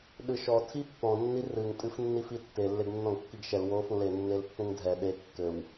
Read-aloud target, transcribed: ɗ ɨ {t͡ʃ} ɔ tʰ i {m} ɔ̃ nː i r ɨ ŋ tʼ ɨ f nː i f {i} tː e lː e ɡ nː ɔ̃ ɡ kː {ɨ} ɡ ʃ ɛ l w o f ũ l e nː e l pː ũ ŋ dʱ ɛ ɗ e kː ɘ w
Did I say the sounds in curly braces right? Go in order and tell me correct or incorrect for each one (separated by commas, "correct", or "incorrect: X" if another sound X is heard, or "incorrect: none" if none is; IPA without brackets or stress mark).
incorrect: ʃ, incorrect: pː, correct, incorrect: i